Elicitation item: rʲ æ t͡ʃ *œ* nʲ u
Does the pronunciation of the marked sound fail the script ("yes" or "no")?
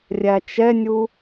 yes